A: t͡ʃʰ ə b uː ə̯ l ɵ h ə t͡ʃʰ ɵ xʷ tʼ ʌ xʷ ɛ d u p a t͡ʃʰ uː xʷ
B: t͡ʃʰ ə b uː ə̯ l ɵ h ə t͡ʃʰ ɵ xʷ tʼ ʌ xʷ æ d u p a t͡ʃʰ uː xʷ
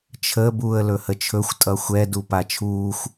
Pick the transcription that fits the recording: A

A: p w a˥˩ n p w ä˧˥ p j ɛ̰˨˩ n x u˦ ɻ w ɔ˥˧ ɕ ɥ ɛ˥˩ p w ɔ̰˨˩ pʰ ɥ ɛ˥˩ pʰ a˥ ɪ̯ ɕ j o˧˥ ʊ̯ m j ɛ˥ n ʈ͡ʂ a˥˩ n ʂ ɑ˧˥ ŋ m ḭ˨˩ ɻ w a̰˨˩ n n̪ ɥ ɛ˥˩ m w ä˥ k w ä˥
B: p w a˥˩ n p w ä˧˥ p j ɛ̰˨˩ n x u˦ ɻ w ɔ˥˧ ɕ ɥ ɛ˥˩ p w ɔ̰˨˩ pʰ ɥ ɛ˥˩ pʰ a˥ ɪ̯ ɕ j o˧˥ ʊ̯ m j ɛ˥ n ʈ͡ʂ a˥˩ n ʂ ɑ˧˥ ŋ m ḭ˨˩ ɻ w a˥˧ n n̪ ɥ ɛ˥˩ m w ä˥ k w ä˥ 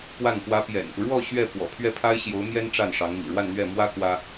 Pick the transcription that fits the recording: B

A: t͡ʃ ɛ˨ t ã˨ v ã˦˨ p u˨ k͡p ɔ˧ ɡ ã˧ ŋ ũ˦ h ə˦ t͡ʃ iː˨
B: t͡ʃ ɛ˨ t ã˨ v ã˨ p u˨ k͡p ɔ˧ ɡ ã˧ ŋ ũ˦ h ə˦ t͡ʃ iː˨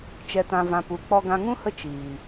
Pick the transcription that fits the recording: B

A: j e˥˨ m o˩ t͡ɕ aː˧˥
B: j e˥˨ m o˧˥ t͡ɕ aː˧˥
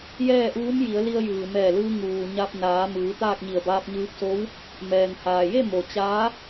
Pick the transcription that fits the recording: A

